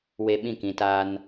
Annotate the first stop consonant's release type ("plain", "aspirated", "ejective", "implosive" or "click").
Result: implosive